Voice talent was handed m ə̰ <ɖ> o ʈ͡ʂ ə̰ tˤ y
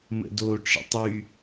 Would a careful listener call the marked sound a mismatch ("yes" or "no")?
yes